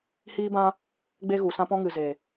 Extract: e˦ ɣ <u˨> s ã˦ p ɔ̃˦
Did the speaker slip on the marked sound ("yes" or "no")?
no